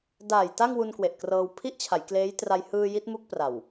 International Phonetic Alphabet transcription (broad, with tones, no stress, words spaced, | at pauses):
daː˨˩j ta˥˩ŋwu˧nkwe˨˩ʔkrɤː˧w pʰi˦˥ʔt͡ɕʰa˩˦j kleː˦˥j tra˧jhɯː˧ ji˦˥t̚mu˦˥k̚pra˨˩w